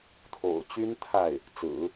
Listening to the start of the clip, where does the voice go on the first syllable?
low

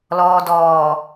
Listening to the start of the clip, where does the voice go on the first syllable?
low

